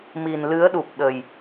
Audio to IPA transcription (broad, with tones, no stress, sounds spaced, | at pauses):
m i˨˩ n l ɨ˨˦ ə̯ ɗ u˨˩ p̚ ɗ ə˨˩ j